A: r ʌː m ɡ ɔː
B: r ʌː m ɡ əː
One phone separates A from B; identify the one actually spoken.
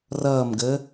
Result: B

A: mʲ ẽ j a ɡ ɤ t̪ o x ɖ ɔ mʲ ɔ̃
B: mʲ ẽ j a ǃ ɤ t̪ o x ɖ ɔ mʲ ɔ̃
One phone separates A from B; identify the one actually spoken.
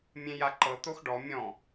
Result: B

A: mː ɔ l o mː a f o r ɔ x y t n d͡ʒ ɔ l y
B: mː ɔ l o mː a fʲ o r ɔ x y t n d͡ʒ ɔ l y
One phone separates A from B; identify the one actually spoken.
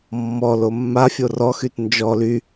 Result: B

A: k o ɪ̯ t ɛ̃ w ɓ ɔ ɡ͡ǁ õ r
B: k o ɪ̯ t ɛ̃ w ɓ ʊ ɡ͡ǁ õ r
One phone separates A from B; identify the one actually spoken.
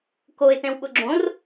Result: B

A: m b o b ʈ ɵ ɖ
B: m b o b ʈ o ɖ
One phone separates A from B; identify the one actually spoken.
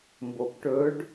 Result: A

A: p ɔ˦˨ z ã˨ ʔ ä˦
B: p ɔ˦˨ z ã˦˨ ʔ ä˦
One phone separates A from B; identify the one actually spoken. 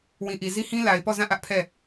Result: B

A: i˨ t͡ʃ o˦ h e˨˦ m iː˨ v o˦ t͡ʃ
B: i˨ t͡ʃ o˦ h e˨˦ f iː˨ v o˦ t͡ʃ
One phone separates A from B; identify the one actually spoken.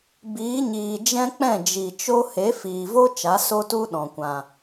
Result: B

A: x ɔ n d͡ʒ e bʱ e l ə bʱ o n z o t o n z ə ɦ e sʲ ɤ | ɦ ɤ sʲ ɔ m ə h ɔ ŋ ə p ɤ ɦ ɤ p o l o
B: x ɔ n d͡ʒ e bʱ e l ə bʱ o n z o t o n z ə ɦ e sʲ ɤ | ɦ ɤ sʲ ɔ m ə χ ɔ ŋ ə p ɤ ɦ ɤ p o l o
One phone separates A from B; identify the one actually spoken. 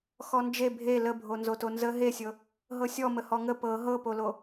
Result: A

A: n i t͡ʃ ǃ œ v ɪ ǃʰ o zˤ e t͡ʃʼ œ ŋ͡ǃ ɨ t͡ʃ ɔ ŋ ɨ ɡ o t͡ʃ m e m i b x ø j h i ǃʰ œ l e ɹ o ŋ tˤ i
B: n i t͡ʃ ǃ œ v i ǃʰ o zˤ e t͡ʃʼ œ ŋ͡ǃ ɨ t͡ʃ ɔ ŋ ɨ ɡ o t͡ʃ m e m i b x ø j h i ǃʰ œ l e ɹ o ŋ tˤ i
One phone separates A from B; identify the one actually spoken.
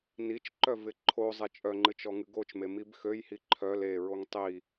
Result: A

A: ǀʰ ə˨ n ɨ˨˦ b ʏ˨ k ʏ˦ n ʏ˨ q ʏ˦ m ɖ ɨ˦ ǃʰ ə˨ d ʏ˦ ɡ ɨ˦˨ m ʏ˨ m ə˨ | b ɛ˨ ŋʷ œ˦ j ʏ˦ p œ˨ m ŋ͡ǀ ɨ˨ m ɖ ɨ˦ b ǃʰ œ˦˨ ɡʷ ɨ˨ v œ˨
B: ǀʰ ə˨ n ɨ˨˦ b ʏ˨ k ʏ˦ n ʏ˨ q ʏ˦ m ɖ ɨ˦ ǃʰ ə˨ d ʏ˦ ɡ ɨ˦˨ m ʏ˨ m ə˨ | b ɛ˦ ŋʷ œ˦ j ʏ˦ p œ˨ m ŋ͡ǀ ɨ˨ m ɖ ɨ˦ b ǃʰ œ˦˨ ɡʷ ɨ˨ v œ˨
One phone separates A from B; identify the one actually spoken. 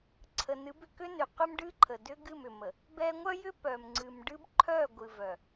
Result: B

